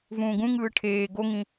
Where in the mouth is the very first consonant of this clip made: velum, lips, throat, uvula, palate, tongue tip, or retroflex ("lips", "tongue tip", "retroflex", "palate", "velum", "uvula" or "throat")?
lips